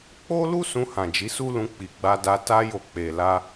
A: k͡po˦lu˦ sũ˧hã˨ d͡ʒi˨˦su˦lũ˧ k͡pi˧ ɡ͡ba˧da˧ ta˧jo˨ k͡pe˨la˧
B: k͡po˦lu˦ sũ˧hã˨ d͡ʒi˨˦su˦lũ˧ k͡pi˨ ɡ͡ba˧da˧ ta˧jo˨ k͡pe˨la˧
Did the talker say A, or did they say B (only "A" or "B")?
B